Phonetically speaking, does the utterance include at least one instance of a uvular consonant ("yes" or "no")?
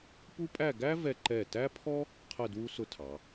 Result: yes